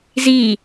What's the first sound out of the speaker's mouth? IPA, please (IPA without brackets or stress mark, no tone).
z